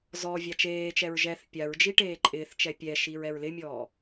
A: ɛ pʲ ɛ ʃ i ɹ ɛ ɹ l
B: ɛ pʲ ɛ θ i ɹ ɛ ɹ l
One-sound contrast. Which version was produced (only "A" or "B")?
A